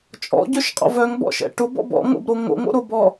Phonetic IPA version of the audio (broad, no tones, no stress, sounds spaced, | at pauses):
t͡ʃʼ ɔ̰ ɟ œ ʃ qʼ ɔ̰ v œ ŋ b ɔ̰ ʃ ɛ̰ ʈ ʊ b ɔ̰ b ɔ̰ ŋ o̰ b ɾ o ŋ o̰ ŋ o̰ ɾ o b ɔ